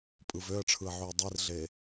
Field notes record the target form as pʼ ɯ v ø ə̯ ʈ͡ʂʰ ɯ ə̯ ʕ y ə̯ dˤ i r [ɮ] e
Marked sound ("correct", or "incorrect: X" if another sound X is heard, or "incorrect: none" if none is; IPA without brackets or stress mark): correct